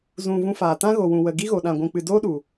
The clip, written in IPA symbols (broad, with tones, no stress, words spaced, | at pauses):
zũ˨ vũ˧faː˨ tã˦ɣo˨ wũ˨wə˨ ɡi˦ɣo˨ɗã˨ɡʷũ˨ k͡pɨ˨doː˦ɗu˨